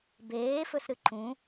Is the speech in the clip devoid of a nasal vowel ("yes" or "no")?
no